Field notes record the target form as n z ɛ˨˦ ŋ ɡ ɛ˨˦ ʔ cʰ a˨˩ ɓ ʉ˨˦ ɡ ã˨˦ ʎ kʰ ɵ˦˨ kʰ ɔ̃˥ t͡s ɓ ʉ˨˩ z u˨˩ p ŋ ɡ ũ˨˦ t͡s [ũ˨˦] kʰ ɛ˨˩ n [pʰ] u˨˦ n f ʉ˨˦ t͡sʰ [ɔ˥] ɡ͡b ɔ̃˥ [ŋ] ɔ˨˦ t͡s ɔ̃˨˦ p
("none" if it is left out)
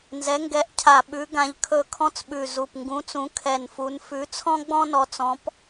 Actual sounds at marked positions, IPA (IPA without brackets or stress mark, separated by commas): ũ˨˦, f, ɔ̃˥, n